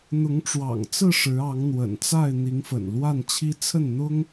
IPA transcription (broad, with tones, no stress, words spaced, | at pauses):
n̪ʊ˨˦ŋʈ͡ʂwɑ̰˨˩ŋt͡sɹ̩˥˨ ʂɻ̩˨˦ ɑ˨˦ŋn̪wə̰˨˩nt͡sa˥˨ɪ̯ n̪i˨˦ŋfə̰˨˩nlwa˥˨n t͡ɕʰi˦ t͡sʰə˥˨nn̪ʊ˦ŋ